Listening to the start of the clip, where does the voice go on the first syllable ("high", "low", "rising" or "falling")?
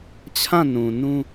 falling